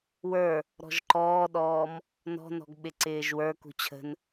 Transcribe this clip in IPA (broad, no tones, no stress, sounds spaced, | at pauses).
w ə˞ | ɾ ɔ̤ ʒ ǃ ɔː ɗ ɔː m | n ɔ̤ n ɔ̤ ɡ ɓ ɪ ǀ ɪː ʒ w ə˞ k ṳ t͡ɕʰ ə̤ n